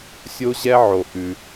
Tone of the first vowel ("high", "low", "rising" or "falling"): high